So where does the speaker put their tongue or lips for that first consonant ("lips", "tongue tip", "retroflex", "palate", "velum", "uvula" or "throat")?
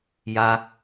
palate